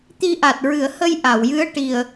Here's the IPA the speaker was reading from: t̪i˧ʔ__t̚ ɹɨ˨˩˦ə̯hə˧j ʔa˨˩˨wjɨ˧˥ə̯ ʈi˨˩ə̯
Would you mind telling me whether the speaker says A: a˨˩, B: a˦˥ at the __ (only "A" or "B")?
A